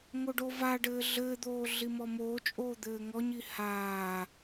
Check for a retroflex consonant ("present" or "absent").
present